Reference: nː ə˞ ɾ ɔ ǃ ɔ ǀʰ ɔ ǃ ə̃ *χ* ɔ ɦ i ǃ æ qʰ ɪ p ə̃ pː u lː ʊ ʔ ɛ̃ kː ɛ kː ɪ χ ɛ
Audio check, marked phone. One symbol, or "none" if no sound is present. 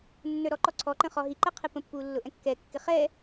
χ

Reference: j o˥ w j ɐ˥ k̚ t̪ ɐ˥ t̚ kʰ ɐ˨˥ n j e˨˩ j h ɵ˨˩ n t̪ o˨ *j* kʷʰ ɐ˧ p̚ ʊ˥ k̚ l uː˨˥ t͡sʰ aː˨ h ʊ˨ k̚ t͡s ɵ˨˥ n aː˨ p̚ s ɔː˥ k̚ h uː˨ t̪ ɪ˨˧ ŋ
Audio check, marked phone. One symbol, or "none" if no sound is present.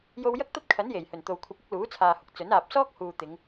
w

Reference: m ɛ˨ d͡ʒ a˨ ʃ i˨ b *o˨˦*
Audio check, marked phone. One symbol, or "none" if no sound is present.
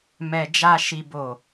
o˨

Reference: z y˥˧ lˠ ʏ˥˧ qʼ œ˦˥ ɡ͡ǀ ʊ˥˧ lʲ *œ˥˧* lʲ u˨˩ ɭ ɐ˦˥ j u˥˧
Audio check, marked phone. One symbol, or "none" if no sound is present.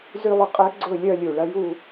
œ˥˧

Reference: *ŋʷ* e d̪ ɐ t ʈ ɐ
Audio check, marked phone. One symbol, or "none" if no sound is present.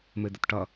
m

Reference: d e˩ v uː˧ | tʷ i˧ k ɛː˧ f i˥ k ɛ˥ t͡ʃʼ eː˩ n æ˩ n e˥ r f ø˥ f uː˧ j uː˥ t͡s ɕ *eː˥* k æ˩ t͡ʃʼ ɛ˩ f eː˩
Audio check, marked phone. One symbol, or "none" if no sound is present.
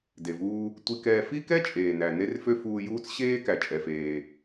eː˥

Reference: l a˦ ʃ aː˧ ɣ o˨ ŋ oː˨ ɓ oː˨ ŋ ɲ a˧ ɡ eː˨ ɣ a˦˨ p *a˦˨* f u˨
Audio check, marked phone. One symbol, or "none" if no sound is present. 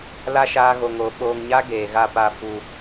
a˦˨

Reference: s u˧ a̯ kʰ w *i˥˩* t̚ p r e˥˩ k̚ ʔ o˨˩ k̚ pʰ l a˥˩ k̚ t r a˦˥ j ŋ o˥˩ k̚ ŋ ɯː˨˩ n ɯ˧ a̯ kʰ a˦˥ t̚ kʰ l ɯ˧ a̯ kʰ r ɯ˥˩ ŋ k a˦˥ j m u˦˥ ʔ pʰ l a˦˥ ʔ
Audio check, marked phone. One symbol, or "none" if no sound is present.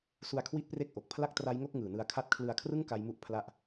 i˥˩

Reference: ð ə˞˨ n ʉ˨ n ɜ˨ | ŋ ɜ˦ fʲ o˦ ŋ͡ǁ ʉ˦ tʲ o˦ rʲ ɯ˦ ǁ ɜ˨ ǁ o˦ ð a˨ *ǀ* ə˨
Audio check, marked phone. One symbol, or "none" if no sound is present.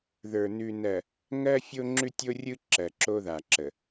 ǁ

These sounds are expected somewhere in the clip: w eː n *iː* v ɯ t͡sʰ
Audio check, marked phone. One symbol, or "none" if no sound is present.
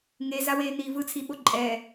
iː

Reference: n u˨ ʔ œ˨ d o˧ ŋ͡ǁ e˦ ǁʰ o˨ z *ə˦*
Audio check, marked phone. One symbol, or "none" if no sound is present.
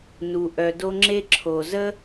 ə˦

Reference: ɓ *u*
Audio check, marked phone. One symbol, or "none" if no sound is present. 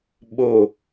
o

